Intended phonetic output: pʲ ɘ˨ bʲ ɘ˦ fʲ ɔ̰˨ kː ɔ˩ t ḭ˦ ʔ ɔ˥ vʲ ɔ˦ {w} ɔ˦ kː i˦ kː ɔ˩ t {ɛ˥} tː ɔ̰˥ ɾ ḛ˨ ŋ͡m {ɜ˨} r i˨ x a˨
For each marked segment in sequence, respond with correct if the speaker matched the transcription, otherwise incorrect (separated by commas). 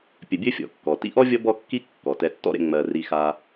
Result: incorrect, incorrect, correct